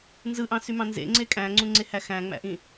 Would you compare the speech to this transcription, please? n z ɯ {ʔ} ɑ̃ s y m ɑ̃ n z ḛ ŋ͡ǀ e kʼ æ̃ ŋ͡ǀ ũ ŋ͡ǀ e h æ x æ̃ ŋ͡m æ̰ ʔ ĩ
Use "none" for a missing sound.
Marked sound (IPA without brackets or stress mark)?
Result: ʔ